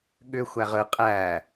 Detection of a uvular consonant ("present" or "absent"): present